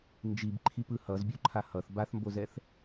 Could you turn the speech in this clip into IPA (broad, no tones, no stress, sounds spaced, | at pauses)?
n d͡ʒ i b ǃʰ i p ɯ h ʌ z bʲ u ǃʰ a h ʌ θ b a θ m b o z ɛ θ